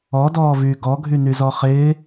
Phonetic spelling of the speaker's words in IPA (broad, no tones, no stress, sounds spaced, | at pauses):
ɔ d ɔː v yː ɡ ɔ ɡʱ y n y z ɔ χ ɪː